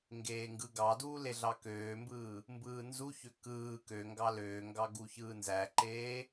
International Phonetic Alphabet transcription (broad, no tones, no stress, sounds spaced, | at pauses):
ŋ ɡ eː ŋ ɡ ɯ ɡ ɑ d uː l e ɮ ɑ k øː m b ɯː | m b ɯː n z u ç ø k ɯː k ø ŋ ɡ ɑ l øː ŋ ɡ ɑ ɡ u ç ɯː n z æ ǃ eː